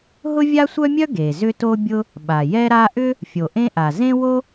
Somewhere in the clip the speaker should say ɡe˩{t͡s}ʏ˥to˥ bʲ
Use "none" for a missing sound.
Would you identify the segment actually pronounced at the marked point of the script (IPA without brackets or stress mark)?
z